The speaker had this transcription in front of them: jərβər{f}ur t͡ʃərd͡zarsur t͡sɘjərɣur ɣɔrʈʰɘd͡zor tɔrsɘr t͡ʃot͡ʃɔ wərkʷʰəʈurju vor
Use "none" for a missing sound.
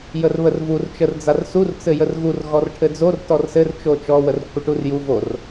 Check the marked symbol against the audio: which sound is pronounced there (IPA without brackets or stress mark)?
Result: v